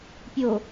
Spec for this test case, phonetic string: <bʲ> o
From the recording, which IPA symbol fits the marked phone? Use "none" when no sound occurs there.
pʲ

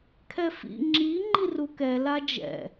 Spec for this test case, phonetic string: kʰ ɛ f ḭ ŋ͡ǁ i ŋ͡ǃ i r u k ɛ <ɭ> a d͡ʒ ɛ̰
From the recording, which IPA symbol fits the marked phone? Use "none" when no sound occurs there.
l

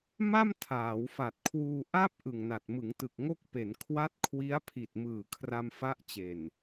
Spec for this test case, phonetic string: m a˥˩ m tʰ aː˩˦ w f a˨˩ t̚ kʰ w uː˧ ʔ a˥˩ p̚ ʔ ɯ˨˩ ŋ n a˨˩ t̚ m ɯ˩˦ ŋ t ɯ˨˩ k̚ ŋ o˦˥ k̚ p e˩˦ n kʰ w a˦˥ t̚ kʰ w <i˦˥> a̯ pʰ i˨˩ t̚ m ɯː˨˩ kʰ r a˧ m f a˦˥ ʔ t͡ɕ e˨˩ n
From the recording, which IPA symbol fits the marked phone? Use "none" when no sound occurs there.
i˦˥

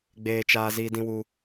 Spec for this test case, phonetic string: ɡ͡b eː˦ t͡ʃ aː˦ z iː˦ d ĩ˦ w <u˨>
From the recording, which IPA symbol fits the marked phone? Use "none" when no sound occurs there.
u˦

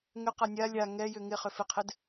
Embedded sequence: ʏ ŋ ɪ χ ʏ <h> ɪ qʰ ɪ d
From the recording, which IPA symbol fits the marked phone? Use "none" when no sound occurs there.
f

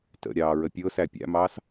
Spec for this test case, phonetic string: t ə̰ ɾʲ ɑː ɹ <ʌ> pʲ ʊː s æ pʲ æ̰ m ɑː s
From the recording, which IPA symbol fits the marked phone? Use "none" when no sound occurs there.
ə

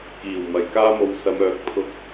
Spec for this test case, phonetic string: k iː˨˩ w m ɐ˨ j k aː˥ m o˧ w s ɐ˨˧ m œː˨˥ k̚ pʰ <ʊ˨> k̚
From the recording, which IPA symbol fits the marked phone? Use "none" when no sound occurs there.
ʊ˧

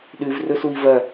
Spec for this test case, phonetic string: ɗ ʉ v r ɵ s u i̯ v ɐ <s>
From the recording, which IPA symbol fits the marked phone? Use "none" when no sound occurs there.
none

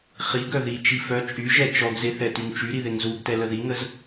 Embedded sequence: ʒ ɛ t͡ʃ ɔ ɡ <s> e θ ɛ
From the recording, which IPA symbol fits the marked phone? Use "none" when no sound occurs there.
z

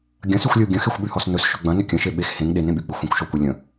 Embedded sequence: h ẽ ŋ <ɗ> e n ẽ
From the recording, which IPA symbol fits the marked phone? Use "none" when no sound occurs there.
ɗ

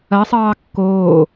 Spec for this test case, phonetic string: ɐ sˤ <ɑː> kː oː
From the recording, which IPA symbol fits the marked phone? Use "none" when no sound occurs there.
ɑː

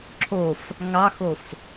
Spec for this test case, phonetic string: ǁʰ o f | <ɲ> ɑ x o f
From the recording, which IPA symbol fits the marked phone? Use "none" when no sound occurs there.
ŋ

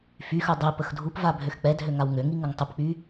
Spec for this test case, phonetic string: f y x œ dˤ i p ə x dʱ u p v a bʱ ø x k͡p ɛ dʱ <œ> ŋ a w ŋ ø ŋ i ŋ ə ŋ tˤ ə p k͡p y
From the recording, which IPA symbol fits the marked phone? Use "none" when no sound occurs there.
ø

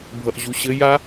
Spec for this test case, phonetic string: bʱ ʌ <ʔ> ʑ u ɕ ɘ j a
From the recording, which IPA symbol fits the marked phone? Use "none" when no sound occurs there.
ʔ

